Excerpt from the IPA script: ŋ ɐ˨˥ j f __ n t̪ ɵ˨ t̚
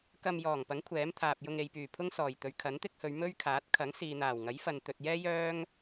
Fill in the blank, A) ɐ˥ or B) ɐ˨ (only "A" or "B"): B